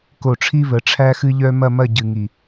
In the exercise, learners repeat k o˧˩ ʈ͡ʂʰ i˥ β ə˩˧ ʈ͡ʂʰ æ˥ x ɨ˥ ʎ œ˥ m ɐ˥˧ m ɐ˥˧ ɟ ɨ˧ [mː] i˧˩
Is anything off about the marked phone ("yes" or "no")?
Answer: yes